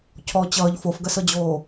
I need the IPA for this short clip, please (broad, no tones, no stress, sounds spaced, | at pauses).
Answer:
cʰ ɔ t͡ɕ ʌː ʎ f o f ɡ ɜ s ɤ d͡ʑ oː